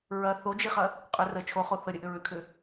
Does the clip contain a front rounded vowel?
yes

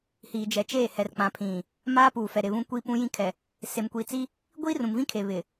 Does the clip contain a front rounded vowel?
no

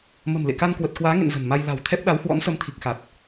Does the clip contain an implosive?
yes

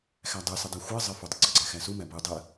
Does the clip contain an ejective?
no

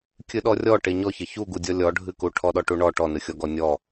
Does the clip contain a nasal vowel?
no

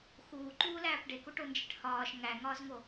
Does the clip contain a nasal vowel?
no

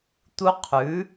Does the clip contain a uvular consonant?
yes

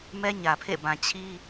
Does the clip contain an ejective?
no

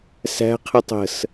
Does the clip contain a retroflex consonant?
no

